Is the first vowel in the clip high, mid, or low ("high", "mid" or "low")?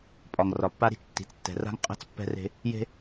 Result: low